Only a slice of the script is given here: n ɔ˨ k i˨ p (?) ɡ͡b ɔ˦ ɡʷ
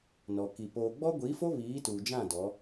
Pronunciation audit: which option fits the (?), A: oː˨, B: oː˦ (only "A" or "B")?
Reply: A